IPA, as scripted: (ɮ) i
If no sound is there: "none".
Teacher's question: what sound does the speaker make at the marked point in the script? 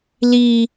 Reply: l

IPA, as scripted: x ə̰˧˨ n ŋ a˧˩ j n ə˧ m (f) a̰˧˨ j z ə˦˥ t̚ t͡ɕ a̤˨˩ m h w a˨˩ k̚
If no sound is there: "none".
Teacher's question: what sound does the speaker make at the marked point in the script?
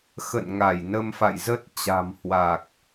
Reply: f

